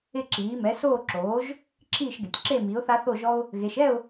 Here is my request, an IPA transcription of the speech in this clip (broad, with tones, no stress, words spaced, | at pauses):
ɪ˥˨ǁiː˩˥ mɛ˩˥soː˥˨ǁoː˩˥ʒ | ǁʰiː˥˨ʃɡɪ˩˧tʲ ǁe˥˨ mi˩˥ʊ̯θa˦θo˥˨ʒɔ˦ʊ̯ | ɣe˩˧ʃɛ˥˨ʊ̯